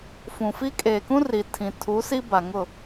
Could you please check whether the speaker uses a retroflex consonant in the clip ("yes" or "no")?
no